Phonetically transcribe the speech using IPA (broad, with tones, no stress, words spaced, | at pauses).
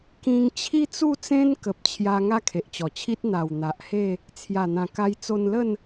kĩ˧ŋ t͡ɕʰi˦t͡su˥˧t͡sẽ˦n kə˨p̚t͡ɕʰja˧ ŋa˦kʰe˨ʔt͡ɕɔ˨˩t͡ɕʰi˦t̚ n̪a˨˩w n̪a˨ʔhe˥˧ | t͡sʰja˨˩n̪ã˨˩ka˧j t͡so˧nlə˥˧n